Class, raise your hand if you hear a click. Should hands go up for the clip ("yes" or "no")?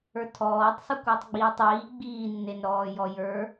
no